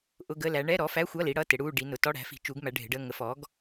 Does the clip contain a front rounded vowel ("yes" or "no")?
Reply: no